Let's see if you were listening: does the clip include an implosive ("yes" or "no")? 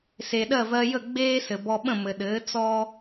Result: yes